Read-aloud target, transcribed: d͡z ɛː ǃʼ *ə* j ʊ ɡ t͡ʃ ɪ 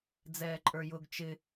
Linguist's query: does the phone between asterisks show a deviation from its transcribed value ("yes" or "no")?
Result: yes